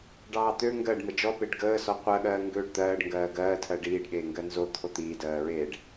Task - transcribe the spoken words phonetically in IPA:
ɖɑːt̪ø ŋɡɜɖ məd͡ʒɔ peɖɡəː sɔqʷɜɠɜː ŋɡøːɖt̪ɜːɖ ŋɡɜːɡɜːtʰɜ ɖiːɖɠeː ŋɡɜnzo t̪ʰot̪iːdɜːɹeːɖ

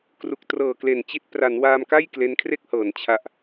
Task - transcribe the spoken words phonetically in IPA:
kru˨˩k̚trɤː˨˩kle˨˩nt͡ɕi˦˥t̚ pra˩˦nwaː˧mka˥˩j kle˦˥nkʰre˥˩k̚hɤː˩˦n t͡ɕʰa˨˩ʔ

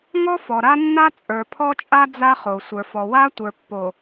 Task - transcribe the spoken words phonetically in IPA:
ŋɔ˦fɔ˨ɾa˦nːa˦ t͡sʼə˞˨pʰɔ˦t͡ʃʼa˦ d͡za˦χo˨ sʷə˞˨fɔ˨ wa˦ tʷə˞˨pːo˨

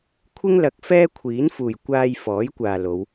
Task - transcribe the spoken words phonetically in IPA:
kʷʰɪ˥ŋlɐ˨˥k̚ fɛː˥kʷʰiː˨˥nfuː˨˩j kʷaː˧j fɔː˨˥jkʷaː˨lo˨˧w

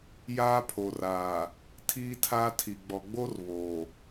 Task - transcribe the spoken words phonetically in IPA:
jaː˦pʰo˨raː˨ | tʰiː˦tʰaː˦tʰi˨ ɡ͡bɔ˨ɡ͡bo˦r βoː˨

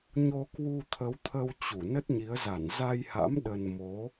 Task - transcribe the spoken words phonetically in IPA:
ɲo˧kwu˧t̪ʰə˨˦wt̪ʰə˧w t͡ɕu˧˩ nə˦˥t̚ɲi˨˦ə̯ za˧˩nza˧jha̰˧˥m ɗə˧n mo˨˦

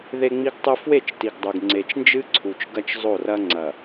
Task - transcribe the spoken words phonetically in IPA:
ðe˨ŋ͡mi˨ɡtˤɨ˨ fwe˦˨t͡ʃti˨ɡdˤu˨ɡ ŋ͡ǀe˨t͡ʃnd͡ʒɨ˦ǀʰu˨t͡ʃ ɡɐ˦t͡ʃzˤo˦˨rɐ˦ ŋ͡ǀɐ˨

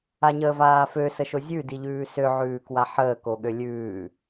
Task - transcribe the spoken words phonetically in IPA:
aɲəːvaːfø səʃozʲʉ diʎʉːsø ʕʉːkwaħəː koɠølʲʉː

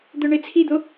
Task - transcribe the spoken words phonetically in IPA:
d̪œɳet͡sʰid̪o

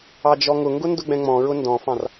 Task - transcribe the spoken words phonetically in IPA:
ɑd͡ʒɔŋʊŋɡʊ ndʊɡ͡bɛ̃ŋ͡mɔ̃ɹʊ ndɔ̃fɑ̃r

